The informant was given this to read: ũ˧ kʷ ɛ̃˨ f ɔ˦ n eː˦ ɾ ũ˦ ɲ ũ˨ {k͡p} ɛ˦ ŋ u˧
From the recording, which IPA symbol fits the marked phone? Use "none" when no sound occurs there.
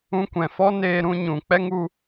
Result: k͡p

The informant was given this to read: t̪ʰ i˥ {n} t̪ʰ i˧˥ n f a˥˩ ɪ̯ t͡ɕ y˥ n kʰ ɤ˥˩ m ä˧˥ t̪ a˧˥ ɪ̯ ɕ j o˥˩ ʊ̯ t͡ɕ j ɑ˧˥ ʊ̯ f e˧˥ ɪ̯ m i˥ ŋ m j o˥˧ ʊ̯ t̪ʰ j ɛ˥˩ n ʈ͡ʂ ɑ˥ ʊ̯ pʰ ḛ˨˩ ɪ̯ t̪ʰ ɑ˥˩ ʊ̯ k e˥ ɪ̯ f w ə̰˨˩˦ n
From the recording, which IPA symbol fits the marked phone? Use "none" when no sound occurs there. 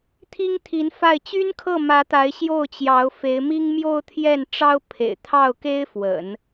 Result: ŋ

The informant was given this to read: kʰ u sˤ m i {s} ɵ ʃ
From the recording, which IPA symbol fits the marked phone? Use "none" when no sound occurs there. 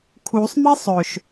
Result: sˤ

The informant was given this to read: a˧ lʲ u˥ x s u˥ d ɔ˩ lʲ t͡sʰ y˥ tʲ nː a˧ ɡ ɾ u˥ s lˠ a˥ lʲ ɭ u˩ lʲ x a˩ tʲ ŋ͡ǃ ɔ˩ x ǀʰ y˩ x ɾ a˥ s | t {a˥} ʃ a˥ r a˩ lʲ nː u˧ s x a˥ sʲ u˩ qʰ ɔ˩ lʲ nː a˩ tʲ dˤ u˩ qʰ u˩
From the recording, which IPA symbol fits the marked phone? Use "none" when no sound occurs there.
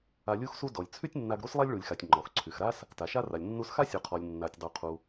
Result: a˩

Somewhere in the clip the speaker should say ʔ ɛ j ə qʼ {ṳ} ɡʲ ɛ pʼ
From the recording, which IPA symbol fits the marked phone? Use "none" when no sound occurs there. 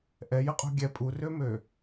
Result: ṳ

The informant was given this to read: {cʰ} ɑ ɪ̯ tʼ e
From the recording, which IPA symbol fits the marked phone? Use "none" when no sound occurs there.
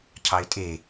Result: cʰ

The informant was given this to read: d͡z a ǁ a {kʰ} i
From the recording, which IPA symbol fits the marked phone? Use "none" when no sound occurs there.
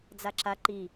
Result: ǃ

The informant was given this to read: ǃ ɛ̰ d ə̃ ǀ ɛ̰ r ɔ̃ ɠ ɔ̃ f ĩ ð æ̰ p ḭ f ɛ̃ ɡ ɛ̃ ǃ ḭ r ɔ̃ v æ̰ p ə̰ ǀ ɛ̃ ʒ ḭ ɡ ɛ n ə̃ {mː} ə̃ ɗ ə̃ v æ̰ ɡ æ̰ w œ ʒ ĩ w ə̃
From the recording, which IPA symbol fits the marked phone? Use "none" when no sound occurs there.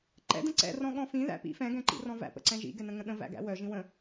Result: ŋ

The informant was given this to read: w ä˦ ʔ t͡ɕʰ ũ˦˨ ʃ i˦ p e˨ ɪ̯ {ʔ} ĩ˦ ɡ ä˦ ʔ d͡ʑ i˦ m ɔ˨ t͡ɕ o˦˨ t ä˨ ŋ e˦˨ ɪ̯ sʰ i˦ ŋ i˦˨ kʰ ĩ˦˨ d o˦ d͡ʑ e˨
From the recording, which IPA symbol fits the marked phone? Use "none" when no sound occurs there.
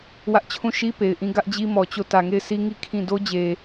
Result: ʔ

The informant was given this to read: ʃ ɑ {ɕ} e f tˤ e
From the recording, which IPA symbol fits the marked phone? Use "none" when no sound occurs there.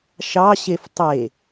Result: ɕ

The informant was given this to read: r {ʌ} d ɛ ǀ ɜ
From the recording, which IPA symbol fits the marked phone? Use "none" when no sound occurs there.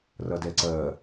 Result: ʌ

